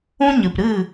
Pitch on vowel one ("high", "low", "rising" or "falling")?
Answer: high